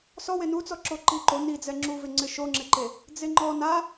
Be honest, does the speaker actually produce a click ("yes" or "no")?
yes